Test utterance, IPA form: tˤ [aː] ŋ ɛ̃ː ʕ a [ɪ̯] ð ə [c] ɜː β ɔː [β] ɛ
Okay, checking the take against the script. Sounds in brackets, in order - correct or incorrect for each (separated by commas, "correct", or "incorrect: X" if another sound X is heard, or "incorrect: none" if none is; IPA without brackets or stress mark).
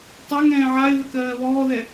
incorrect: a, correct, incorrect: k, incorrect: ð